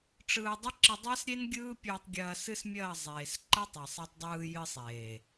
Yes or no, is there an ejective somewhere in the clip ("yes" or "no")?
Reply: no